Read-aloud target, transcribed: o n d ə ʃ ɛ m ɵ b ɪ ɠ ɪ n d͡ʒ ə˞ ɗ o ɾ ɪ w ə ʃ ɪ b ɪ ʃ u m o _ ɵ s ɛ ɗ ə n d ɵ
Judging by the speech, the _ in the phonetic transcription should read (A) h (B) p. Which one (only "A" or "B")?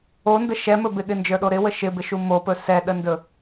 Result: B